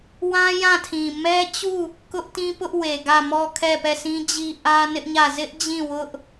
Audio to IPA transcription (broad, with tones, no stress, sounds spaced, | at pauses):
w ã˦ j ã˦˨ tʰ ĩ˨ m ɛ˦ t͡ɕ u˦˨ | k ʊ˦ ʔ t ĩ˦ p ʊ˦ ʔ w e˨ ɡ ä˦˨ m ɔ˦˨ kʰ ɛ˦˨ p ɛ˦˨ s ĩ˦ d͡ʑ i˦ ʔ ä˦ n ɪ˦ ʔ ɲ ä˦˨ z ɪ˦ ʔ d͡ʑ ĩ˦˨ w ʊ˦ ʔ